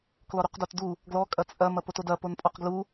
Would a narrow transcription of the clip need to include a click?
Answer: no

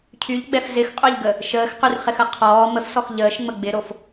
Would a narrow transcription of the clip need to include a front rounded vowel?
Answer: yes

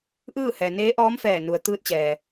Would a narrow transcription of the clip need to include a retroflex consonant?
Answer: no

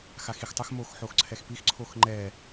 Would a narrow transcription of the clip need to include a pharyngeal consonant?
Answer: yes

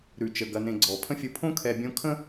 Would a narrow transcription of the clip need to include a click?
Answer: yes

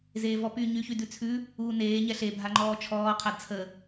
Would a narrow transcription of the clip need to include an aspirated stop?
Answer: yes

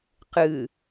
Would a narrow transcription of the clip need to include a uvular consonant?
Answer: yes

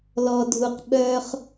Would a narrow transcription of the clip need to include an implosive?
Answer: yes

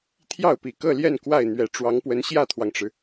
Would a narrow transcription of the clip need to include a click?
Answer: no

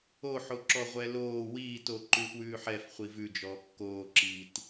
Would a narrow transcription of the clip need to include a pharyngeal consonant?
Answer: yes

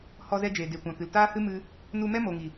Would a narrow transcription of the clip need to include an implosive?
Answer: no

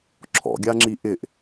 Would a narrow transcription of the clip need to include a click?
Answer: yes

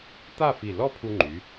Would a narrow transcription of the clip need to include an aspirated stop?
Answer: yes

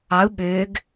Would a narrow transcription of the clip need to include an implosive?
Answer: yes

